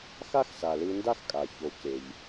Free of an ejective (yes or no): no